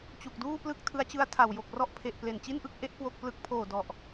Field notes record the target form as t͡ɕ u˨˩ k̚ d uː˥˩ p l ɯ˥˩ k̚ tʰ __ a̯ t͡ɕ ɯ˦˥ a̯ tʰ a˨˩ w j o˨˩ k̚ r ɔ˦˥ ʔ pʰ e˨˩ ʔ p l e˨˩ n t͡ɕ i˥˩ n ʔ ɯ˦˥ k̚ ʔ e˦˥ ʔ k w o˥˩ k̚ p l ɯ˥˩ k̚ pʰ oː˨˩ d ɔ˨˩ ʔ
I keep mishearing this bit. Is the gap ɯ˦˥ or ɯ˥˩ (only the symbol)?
ɯ˦˥